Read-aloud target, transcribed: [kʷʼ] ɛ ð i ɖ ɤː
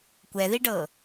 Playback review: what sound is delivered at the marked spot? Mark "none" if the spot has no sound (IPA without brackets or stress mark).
kʷ